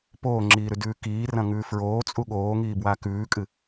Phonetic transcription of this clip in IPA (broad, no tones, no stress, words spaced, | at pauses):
poːŋ͡ǁiːɾʉdʉː kiːrɐ̃ŋʉː fɹoːt͡sʼu ɠoːŋiːbwa kʉːkʼɨ